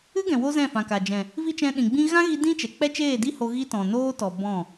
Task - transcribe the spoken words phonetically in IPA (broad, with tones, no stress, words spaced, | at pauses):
ɨ˦ɡɛ̃˨wo˧ zɛ̃˦˨fã˨ka˨ d͡ʒɛ̃˨ | vi˦t͡ʃɛ̃˧ɗĩ˨ɡ͡bĩ˦ ɣã˦ɣi˧ dĩ˦t͡ʃɛ˨ k͡pɛ˦t͡ʃeː˦˨di˦ ho˧ ɣi˦tɔ̃˨ noː˦tɔ˨ bɔ̃˦˨